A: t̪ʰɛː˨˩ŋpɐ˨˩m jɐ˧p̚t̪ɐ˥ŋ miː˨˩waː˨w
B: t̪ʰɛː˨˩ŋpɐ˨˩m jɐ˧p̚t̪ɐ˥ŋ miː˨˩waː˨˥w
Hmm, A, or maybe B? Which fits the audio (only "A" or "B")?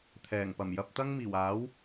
B